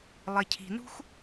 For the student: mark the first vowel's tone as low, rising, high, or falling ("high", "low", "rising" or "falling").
low